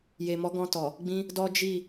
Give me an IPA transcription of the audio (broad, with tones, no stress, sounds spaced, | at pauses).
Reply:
j e˨ m ɔ˨˦ ɡ ɔ̃˧ t ɔ˨ | ɡ͡b ĩ˦ | d ɔ˦ d͡ʒ i˦˨